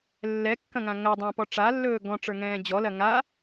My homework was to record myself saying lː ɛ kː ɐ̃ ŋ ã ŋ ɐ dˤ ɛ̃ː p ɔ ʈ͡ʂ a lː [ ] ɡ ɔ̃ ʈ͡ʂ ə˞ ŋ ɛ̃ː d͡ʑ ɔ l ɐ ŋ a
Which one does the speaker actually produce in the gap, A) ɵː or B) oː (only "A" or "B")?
A